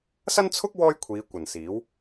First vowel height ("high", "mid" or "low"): low